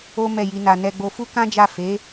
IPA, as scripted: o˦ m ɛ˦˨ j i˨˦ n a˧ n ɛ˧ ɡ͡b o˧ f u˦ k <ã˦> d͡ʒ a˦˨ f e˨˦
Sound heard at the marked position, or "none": ã˦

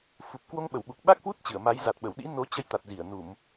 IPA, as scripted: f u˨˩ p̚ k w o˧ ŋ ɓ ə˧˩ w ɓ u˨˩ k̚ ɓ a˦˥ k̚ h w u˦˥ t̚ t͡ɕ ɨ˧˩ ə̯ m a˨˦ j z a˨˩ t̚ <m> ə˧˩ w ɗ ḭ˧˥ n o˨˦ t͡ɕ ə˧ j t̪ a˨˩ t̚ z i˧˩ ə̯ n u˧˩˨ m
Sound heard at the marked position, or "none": ɓ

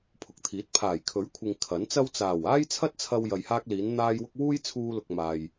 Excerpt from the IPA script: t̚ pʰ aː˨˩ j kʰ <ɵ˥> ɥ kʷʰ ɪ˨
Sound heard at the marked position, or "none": ɵ˨˥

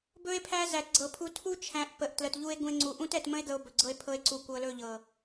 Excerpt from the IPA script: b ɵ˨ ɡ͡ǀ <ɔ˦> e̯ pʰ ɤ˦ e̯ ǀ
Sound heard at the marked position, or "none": ɤ˦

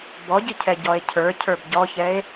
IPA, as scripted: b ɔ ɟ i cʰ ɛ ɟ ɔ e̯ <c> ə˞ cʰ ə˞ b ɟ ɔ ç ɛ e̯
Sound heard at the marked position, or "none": cʰ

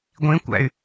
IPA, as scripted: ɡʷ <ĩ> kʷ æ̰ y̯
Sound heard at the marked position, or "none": ĩ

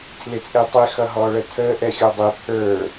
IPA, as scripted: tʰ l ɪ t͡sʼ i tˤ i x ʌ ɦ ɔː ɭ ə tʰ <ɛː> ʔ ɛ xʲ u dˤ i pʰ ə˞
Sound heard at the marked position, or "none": əː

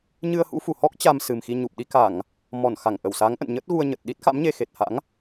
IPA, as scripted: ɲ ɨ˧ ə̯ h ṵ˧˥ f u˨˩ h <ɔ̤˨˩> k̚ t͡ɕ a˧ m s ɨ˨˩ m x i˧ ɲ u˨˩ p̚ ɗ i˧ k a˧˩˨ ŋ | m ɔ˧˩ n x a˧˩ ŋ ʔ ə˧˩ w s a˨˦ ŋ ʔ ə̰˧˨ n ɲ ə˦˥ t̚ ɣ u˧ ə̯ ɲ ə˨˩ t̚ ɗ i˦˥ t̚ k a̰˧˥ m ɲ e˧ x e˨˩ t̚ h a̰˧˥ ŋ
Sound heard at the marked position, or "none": ɔ˦˥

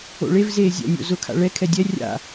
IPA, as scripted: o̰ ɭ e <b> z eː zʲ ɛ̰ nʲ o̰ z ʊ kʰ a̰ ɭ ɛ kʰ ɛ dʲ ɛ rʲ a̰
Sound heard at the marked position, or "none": v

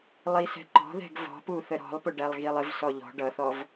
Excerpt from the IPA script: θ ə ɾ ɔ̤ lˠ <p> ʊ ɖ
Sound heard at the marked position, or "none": p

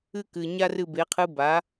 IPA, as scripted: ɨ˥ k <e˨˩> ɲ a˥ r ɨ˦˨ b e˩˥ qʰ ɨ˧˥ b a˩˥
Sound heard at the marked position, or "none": ɨ˨˩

